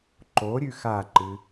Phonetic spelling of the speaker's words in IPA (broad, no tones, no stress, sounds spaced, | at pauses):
ǃ o ɾʲ ʉ x a ǃ ɨ